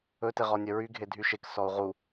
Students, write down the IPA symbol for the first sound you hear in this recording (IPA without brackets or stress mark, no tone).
ɵ